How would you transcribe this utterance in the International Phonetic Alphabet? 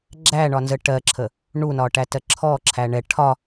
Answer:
ɡ͡ǁ æ ɳ ɒ n z ə ʈ ɜ ǁʰ ə | ɳ u n ɒ ʈ æ t ɜ ǁʰ ɔ ǁʰ æ ɳ ɛ ʈʰ ɒ

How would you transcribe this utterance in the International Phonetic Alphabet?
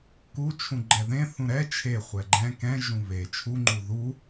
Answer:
k u t͡ʃʰ ũ ɡ͡ǃ ɛ ð ẽ θ ũ ɾ ɛ t͡ʃʰ e χʷ ɛ ɡ͡ǃ ɛ̃ k ɛ̃ ʒ ũ β e t͡ʃʰ u ŋ͡ǃ u ð u

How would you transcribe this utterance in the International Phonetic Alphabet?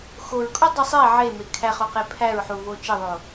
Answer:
x o ɹ kʼ u dˤ i sˤ e ʕ e m e kʰ æ χ o q e pʰ æ ɹ ħ u v o t͡ʃ e ðˤ o

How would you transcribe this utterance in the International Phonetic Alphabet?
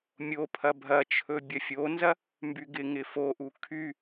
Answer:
mʲ o pʰ ɐ bʱ ɐ t͡ʃʰ ɵ bʲ ɐ fʲ o n z ɐ | m b y ɡ ɪ ŋ ɪ f o ʔ u kʰ y

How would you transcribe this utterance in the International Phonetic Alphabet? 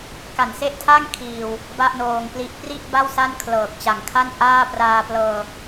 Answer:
k a˨˩ n s e˥˩ ʔ tʰ a˥˩ ŋ kʰ iː˧ w | b a˥˩ ʔ n oː˧ ŋ p l i˦˥ ʔ p r i˥˩ ʔ b a˥˩ w s a˥˩ n kʰ l ɤː˨˩ k̚ t͡ɕ a˨˩ ŋ kʰ a˥˩ n ʔ aː˥˩ p r aː˧ p l ɤː˧

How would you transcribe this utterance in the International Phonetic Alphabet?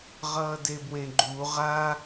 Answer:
ʁ ʌː d e b w ẽ ɡ͡ǃ u ʁ a

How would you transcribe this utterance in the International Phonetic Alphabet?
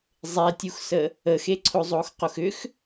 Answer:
zˤ e tʲ u x s ə | ə x e ǀʰ o zˤ o x q o x ʏ x

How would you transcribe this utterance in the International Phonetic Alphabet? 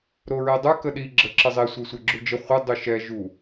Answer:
ɾ o ɹ ɛ dˤ ə˞ k ə ɗ i ɡ͡ǁ ə ǁ ə zˤ e sʷ e sʷ ɛ ɡ͡ǁ u d͡ʒ ə χʷ ə dˤ u ʃ ɛ ʒ u

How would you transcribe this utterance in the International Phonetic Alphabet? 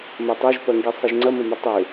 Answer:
m ɐ tˤ ø ʒ p ɐ ŋ ɡ i sˤ i ʒ ŋ͡ǀ ɐ m ə m ə tˤ ø

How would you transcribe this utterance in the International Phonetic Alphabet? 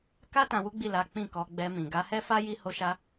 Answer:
k a˦ t ã˧ w u˦ ɡ͡b i˦˨ l a˨˦ k͡p ĩ˦˨ k ɔ˧ ɡ͡b ɛ˧ m ĩ˨ ɡ a˧ h ɛ˦ f a˦ j i˧ h o˧ ʃ a˧

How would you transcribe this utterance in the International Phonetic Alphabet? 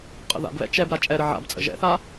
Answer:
qʼ ə̰ ð a̰ b β ɛ̰ t͡ʃ ɛ b ɾ a t͡ʃʼ ɛ ɾ ə ʕ a̰ b t͡sʼ ə̰ ʒ ɛ̰ θ a

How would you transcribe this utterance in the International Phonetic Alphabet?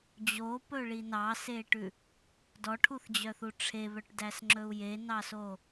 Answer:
d͡ʑ o p ɵ ɭ i n ɑ s e ʈ ʉ | d ɔ ʈʰ u θ d͡ʑ œ θ u ʈ͡ʂʰ e β œ ʈ d æ s ŋ͡ǁ ɵ u̯ j e n ɑ s o

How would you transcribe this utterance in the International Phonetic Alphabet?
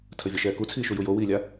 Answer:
tʰ ə vʲ ʌ ʃ ɛː k u t͡sʰ iː ʃ u j u j o w iː lʲ a

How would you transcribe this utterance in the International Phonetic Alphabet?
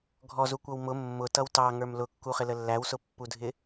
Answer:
ɡʱ ɔ z u kʷ ʌ w m ʊ mː ʊ t ʌ w t ɑ ŋ ə˞ m l ʊ kː u χ ɪ l ə lː æ w s ʊ pː u dʱ ɪ

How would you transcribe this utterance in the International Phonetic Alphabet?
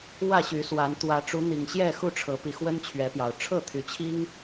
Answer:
w ä˥˨ ɕ y˨˦ s w a˨˦ n t̪ w ä˨˦ ʈ͡ʂ u˨˦ n̪ i˨˩ ŋ ɕ j ɛ˥˨ x u˥˨ ʈ͡ʂʰ ɤ˨˦ p i˨˦ x w ə˦ n t͡ɕʰ ɥ ɛ˨˦ p j ɑ˨˩ ʊ̯ ʈ͡ʂʰ ɤ˥˨ t̪ʰ y˨˦ t͡ɕʰ i˦ ŋ

